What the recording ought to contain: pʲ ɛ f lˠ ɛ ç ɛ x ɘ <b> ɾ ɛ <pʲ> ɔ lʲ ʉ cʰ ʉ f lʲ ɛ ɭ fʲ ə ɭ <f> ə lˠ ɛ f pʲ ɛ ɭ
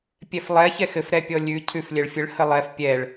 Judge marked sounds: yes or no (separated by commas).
no, yes, no